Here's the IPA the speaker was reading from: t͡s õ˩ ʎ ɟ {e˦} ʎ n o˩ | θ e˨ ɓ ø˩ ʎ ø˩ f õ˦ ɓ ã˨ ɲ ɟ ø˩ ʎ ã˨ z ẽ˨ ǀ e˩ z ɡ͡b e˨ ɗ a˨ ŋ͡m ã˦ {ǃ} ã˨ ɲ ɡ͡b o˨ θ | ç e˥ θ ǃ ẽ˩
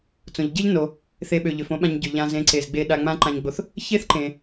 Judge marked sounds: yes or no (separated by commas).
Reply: yes, yes